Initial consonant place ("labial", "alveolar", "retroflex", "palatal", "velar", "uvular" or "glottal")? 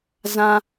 alveolar